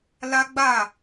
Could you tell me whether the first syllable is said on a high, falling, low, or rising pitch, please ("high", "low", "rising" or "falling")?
high